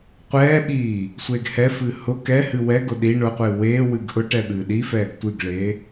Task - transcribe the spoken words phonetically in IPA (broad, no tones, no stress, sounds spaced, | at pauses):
qʷ ɛː ɓ iː | sʷ eː ɡ h ɛ f ɨː h ʊ k ɛ h ɨ w ɛ ɡ ʊ ɗ i ɳ ʊ qʷ ɨː w eː w ɨ ɡ ʔ ʊ ʈ ɛ ɓ ɨː ɗ i f ɛː ɡ tʷ ɨ ɡ ɭ eː